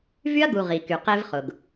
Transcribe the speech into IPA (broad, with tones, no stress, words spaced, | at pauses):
vy˦ɐ̯ɡu˨ ʁi˨ ky˨ qe˦vχʊ˨ɡ